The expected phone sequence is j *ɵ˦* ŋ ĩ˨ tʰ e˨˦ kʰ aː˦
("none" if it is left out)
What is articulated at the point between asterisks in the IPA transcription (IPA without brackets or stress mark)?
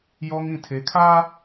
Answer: ɔ˦